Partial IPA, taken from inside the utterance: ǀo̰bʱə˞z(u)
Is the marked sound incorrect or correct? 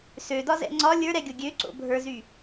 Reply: incorrect